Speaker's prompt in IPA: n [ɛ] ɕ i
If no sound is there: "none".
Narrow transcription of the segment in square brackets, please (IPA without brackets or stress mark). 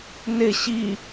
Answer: ɪ